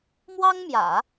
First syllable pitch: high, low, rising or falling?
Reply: high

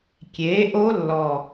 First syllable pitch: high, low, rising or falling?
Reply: rising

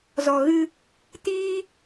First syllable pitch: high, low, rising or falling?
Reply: low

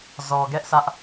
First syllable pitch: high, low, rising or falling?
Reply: low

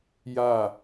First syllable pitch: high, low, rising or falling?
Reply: falling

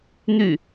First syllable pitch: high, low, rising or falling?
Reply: falling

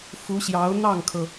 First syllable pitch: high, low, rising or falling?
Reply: rising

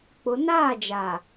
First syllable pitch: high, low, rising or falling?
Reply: rising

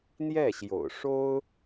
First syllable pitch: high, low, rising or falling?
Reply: falling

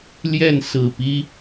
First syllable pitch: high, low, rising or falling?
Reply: falling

